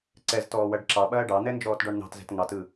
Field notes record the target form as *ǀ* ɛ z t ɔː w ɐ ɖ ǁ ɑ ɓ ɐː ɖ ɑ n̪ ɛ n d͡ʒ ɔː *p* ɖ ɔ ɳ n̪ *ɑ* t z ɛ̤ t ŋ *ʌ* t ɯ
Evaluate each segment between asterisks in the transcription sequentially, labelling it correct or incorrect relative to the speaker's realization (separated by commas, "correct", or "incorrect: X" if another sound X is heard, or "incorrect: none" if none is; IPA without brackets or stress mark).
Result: correct, incorrect: t, incorrect: ɑ̤, incorrect: ɑ